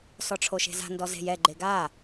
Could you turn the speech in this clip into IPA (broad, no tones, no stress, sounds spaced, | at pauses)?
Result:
s ɔ ʈ͡ʂʰ o ʃ e̤ z a̤ n d ɔ z e̤ j ɛ ɡ͡ǃ e ɡ a